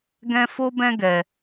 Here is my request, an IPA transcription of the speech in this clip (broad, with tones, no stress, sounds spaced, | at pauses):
ɡ ɛ̃˦ f o˦ b ɛ̃˦ ɡ ɛ˧